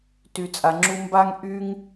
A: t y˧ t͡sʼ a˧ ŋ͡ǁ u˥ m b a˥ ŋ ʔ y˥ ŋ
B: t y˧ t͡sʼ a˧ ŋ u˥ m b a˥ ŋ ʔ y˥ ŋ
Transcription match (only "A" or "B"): A